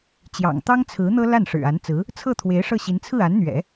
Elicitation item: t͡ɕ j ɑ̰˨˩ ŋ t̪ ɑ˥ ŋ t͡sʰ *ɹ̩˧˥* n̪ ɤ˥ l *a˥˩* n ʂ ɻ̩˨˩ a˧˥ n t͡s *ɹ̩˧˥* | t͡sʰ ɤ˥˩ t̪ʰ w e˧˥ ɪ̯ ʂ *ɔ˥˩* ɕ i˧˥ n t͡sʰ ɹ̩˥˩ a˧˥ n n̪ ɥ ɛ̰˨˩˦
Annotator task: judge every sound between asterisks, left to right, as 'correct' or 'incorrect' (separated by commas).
correct, correct, correct, incorrect